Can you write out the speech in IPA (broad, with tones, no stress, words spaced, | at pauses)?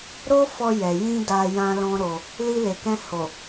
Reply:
ɾo˦fɔ˧ jɛ˨jĩ˧ da˨ jã˧lɔ̃˦ɾo˧ | li˧le˨kɛ̃˧ ho˨